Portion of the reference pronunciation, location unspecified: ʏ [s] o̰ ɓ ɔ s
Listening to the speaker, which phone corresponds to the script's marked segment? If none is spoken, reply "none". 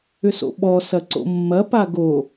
s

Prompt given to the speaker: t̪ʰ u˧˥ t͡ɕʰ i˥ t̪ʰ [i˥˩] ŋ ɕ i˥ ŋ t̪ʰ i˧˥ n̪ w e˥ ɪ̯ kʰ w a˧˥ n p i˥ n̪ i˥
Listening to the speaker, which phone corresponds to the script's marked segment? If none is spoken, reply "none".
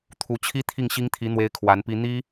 i˥˩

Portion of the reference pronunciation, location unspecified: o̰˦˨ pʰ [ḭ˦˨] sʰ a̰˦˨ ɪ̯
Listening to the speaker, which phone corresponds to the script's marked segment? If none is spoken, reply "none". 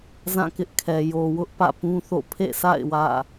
ḛ˦˨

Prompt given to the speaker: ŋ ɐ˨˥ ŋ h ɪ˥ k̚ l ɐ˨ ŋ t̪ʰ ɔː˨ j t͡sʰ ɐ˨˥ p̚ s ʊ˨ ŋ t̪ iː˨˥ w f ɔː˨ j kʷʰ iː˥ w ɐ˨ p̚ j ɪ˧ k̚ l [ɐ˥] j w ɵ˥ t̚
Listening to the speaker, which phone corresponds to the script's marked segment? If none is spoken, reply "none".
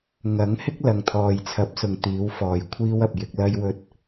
ɐ˥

